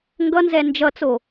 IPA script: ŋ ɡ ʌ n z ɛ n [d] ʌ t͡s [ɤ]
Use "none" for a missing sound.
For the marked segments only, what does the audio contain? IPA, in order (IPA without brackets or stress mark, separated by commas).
d͡ʒ, o